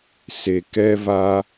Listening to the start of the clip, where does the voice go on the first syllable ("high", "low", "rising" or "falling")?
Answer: low